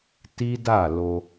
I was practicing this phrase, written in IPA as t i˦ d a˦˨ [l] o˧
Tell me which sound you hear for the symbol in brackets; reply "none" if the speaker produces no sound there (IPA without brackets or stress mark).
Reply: l